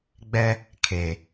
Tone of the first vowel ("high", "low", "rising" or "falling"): high